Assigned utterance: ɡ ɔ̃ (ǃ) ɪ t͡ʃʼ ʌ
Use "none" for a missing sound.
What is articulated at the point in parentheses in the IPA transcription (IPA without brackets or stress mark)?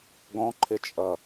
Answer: ǃʰ